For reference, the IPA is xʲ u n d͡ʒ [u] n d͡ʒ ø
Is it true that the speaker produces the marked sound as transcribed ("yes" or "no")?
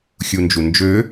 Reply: yes